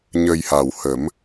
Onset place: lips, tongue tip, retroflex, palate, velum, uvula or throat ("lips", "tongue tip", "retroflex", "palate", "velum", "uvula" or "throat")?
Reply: palate